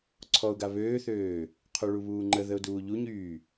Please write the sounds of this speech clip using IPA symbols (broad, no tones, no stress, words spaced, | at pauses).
ǀʰɔʊ̯ɡa βøːθøː | qʰoɭuβuːŋ͡ǃə ðəʊ̯duːʎuɲyː